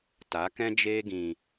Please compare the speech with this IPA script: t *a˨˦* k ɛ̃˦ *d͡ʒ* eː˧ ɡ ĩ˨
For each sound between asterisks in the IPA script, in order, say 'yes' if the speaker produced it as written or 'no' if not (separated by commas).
yes, yes